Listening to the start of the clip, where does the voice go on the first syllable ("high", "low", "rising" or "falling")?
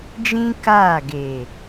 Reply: high